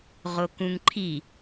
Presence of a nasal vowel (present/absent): present